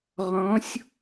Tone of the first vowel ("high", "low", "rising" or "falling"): rising